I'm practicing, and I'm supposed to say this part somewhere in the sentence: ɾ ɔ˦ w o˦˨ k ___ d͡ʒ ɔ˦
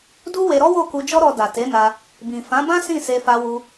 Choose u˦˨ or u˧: u˧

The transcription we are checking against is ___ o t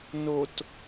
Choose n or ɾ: n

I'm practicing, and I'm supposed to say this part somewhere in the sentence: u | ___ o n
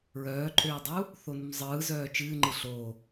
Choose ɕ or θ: θ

